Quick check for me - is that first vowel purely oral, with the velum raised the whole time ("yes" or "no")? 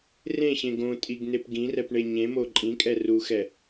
no